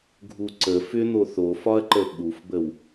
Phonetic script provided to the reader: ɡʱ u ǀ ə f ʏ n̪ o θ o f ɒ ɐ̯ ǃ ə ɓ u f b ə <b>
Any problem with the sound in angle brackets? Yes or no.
yes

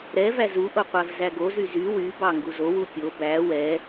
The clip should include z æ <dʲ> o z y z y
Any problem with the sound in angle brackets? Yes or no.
yes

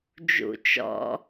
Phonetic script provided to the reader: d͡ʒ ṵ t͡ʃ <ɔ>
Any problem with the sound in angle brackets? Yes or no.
yes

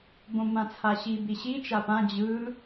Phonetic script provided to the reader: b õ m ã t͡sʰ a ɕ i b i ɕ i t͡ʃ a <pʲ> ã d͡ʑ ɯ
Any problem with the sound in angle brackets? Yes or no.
yes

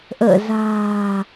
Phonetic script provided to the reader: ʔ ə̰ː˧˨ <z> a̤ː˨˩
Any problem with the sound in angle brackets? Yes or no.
no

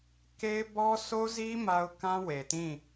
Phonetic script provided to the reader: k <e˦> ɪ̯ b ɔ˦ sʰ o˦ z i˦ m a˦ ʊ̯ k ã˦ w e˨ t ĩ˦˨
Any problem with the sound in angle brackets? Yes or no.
no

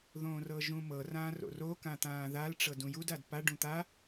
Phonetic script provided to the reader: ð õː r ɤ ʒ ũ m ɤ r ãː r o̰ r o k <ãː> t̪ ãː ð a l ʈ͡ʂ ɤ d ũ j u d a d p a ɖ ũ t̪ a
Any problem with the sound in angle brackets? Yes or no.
yes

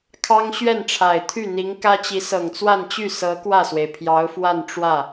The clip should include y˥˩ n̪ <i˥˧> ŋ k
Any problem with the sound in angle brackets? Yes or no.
yes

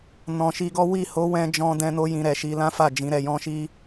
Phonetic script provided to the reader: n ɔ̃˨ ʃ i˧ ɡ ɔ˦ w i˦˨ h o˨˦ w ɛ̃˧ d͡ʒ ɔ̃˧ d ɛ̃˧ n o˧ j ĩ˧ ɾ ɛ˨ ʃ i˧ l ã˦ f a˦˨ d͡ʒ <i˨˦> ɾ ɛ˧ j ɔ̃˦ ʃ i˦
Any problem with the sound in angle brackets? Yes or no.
yes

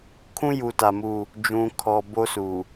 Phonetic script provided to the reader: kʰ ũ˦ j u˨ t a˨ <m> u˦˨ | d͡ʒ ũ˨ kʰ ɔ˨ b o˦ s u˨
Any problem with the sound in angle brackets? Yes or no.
no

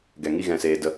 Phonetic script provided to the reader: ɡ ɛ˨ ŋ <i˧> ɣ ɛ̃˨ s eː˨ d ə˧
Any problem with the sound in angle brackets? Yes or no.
no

